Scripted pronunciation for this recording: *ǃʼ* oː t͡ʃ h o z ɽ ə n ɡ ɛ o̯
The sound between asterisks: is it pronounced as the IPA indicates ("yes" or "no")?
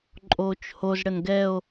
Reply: yes